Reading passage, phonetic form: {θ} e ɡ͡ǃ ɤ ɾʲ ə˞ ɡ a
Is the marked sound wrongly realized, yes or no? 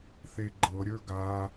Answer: no